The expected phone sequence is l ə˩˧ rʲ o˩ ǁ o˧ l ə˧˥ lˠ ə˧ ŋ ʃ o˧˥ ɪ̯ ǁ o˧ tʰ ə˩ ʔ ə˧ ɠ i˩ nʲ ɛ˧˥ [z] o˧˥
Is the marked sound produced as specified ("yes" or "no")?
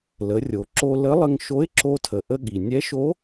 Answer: no